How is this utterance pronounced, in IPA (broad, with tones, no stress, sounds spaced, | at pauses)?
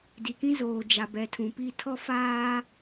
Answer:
d i˨ k ĩ˦ z oː˨ d͡ʒ a˨ b ɛ˨ tʰ ũ˨ p i˦ tʰ ɔ˦ f aː˦